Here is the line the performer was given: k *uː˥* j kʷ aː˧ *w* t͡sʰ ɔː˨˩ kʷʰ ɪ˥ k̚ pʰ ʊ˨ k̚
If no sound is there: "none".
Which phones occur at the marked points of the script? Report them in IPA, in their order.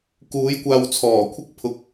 uː˨˥, w

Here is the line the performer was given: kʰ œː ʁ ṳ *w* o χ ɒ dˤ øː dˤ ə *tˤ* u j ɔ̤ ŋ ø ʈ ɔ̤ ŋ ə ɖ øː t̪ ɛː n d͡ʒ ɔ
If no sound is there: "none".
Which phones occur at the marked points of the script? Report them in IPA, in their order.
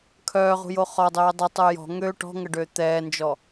j, tˤ

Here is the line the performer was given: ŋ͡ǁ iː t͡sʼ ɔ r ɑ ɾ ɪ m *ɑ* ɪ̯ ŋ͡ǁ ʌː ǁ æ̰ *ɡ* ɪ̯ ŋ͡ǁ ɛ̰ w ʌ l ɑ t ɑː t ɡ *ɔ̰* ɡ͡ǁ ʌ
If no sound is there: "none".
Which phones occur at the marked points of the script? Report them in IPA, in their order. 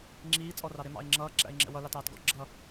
ɑ̰, none, ɔ̰

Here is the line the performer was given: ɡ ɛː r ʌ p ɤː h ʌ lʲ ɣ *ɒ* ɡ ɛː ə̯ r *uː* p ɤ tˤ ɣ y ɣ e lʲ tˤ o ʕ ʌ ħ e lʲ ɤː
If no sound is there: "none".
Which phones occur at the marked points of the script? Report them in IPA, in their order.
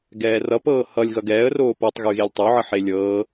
ʌ, oː

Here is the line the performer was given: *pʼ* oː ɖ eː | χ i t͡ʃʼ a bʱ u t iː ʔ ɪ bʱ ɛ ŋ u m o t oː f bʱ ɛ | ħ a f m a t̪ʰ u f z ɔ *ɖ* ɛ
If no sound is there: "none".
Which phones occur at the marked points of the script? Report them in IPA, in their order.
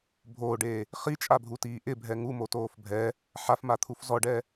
bʱ, ɖ

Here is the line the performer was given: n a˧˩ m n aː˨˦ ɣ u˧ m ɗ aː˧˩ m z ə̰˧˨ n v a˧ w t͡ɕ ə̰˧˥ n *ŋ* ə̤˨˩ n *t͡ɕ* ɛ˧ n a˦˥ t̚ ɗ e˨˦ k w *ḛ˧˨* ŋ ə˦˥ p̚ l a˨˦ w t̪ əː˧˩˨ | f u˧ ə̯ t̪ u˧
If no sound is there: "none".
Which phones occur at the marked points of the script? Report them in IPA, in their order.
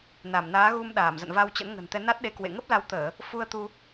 ŋ, t̪, ḛ˧˨

